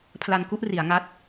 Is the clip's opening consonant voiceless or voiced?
voiceless